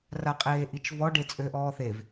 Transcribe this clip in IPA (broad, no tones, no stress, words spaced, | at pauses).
raqʼeːʔit͡ʃvɔ ɖet͡sʼøʔɔːθev